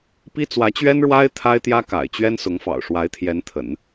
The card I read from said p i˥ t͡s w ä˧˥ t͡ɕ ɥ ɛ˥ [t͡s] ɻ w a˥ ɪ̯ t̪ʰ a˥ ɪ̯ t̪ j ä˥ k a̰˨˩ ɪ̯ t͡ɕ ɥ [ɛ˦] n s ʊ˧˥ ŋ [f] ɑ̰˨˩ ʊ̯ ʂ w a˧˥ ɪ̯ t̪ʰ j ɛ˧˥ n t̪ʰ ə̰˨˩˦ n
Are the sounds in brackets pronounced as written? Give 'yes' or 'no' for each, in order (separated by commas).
no, no, yes